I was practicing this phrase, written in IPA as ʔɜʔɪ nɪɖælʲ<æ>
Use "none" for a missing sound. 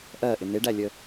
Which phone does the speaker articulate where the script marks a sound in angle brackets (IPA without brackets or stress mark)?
ə